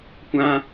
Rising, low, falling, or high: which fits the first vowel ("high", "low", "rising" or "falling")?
high